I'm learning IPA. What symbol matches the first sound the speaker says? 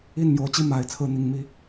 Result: i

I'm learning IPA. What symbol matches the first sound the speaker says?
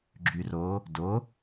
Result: ɡ͡ǁ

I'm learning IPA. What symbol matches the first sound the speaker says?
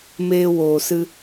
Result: m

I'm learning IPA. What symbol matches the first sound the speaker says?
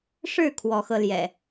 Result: ʂ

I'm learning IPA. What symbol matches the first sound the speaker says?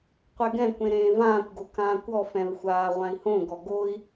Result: qʷ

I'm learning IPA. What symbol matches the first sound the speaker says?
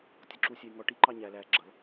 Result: tʲ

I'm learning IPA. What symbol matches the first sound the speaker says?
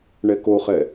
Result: ɳ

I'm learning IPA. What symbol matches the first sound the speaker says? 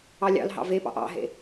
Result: ɑ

